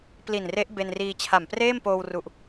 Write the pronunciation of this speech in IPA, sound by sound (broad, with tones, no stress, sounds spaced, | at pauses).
p l i˨˩ n r e˦˥ ʔ b e˧ n r iː˧ t͡ɕʰ a˨˩ m p r eː˥˩ m p oː˧ w r u˨˩ ʔ